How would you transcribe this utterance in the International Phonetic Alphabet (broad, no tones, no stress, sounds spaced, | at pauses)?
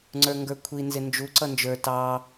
ŋ͡ǀ ə˞ ŋ ɡ ə˞ kʷʰ i n z ɪ n d͡ʒ u ǀ ʌ n d͡ʒ ə˞ t ɑ